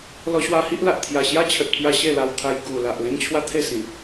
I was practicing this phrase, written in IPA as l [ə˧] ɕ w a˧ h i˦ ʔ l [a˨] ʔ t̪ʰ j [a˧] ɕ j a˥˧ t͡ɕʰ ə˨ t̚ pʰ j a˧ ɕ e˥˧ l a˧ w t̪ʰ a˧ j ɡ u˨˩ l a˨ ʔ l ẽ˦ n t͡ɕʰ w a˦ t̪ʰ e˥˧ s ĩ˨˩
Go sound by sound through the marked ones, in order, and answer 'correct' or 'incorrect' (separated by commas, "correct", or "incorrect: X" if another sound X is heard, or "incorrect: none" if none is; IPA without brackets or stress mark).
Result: incorrect: ɔ˧, correct, incorrect: a˨˩